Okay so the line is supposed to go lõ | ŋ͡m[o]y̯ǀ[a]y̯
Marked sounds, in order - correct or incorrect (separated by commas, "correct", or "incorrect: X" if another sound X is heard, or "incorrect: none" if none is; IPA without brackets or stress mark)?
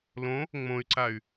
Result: incorrect: õ, correct